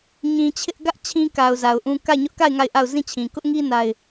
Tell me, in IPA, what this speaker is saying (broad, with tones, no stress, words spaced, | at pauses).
ɲĩ˨ t͡ɕʰɪ˦ʔ ɡä˦ʔ t͡ɕʰĩ˦ka˨ʊ̯ za˨ʊ̯ʔũ˦ ka˦˨ɪ̯ɲʊ˦ʔka˦˨ɪ̯ ŋa˦˨ɪ̯ʔa˦˨ʊ̯zĩ˦˨t͡ɕʰĩ˨ kʊ˦ʔŋi˦ na˦ɪ̯